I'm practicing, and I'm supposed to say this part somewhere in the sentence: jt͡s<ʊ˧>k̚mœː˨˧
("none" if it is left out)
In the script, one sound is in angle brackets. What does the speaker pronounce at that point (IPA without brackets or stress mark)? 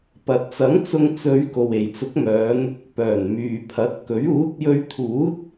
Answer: ʊ˨˥